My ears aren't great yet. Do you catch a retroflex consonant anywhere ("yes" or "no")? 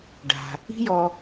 yes